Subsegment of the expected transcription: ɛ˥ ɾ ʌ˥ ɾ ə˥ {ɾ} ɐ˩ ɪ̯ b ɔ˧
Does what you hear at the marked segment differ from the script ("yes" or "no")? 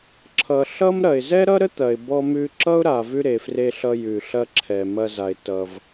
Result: yes